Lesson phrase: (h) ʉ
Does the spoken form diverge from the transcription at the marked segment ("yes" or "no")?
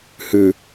no